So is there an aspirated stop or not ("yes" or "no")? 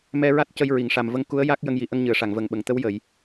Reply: no